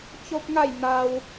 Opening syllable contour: high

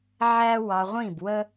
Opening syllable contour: high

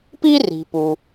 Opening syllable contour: high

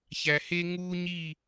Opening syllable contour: low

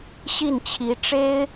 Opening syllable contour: falling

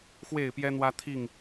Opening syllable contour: falling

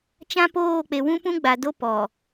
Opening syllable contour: high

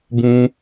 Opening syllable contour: high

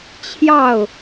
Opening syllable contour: falling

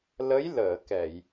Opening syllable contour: rising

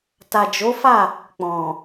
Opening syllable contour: low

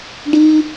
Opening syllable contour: high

